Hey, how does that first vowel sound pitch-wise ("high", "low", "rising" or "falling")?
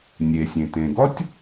low